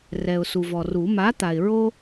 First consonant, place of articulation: alveolar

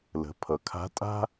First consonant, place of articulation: alveolar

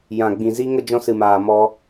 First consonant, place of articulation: palatal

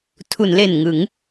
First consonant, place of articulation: alveolar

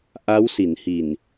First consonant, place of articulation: glottal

